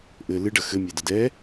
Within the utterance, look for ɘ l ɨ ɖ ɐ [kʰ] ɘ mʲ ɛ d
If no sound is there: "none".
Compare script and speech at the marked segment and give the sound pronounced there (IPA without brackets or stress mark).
x